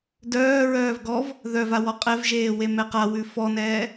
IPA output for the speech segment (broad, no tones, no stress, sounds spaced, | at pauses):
d œː ɹ œː v ɡ ɔ v | ð œ v a w ɔ qʼ ɛ v ʒ eː w e m ɛ q a w ʉ f ɔ n ɛː